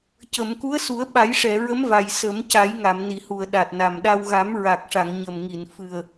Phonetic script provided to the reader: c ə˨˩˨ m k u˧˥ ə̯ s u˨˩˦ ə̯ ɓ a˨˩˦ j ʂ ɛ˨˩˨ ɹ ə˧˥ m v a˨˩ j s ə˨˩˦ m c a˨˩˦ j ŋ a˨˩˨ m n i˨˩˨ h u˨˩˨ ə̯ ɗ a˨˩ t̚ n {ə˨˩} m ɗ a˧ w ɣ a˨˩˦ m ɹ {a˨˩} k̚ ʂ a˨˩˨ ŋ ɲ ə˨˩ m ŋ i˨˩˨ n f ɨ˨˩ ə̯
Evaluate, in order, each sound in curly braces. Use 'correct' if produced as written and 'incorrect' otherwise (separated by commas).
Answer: incorrect, correct